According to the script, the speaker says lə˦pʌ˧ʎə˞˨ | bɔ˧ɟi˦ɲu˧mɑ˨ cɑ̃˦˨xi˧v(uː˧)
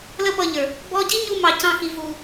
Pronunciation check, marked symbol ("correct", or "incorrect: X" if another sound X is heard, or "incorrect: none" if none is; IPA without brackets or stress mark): correct